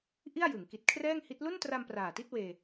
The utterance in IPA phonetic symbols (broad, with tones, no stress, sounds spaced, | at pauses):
ʔ i˥˩ a̯ j ɯ˩˦ ŋ k i˨˩ t̚ kʰ r ɛː˥˩ ŋ h i˦˥ t̚ l u˥˩ n t r a˧ m p r aː˨˩ t i˥˩ t̚ w eː˧